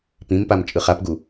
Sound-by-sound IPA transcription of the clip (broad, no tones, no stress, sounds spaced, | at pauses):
p ĩ m p a m t͡ʃʼ ɯ χ a p ɡ u